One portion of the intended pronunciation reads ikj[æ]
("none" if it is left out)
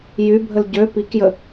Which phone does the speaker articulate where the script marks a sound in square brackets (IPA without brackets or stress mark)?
ə